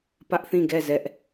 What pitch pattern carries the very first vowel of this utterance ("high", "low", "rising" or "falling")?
high